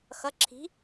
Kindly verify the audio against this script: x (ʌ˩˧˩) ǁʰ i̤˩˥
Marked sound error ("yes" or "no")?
no